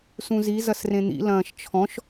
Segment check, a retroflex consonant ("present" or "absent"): absent